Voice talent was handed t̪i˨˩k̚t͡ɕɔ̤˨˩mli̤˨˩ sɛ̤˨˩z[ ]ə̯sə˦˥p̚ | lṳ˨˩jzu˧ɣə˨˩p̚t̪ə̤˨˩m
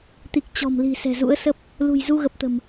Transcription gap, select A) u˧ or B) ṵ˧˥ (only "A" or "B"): B